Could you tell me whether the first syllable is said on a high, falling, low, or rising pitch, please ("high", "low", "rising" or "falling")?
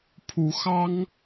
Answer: rising